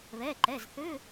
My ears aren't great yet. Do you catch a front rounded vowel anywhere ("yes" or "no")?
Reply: yes